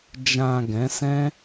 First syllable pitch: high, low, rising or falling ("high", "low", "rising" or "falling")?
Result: low